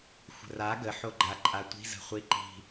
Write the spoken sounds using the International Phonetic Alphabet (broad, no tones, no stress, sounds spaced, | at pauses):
xʷ ə̤ r a ɡ ə ħ o ɡ͡ǃ a ǃʼ a tʷ i̤ z ə̤ χʷ i ǃ i̤